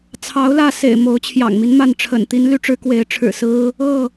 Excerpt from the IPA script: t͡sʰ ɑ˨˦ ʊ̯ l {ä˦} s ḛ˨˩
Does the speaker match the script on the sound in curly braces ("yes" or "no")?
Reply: no